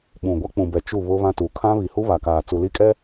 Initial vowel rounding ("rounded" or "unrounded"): rounded